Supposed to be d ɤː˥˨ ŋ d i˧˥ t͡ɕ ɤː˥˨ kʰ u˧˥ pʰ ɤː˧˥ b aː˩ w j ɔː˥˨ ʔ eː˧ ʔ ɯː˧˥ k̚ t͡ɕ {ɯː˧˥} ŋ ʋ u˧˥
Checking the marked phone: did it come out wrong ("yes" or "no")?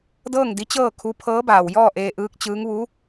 no